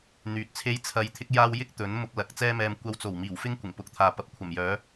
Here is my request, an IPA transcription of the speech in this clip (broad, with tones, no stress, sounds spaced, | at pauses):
n̪ yː˨ t̚ t͡sʰ e˥ j t͡sʰ ɐ˧ j t̪ʰ ɪ˥ k̚ j aː˥ w j ɪ˥ k̚ t̪ ɵ˨˥ n m ʊ˧ k̚ l ɐ˨˥ k̚ t͡s ɛː˥ m ɛː˧ m kʷ ɐ˧ w t͡s o˨˩ w m iː˨˩ w f ɪ˥ ŋ kʷ ɪ˨˩ ŋ p ʊ˨ k̚ t̪ʰ aː˨ p ɐ˧ p̚ kʷʰ ɐ˨˩ m j œː˨˥